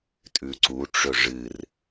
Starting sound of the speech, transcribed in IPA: tʼ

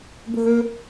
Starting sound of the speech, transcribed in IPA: bʱ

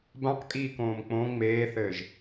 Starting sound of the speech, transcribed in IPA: b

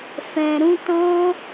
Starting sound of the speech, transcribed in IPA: f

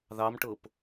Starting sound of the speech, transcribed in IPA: ð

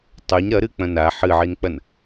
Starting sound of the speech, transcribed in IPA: tˤ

